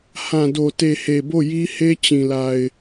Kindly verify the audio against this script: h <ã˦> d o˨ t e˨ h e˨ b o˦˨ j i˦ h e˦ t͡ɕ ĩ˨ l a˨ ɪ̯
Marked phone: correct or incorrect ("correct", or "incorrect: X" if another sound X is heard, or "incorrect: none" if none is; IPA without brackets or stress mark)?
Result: incorrect: ã˨